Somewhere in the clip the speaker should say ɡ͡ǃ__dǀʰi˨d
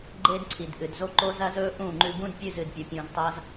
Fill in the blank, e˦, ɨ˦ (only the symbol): e˦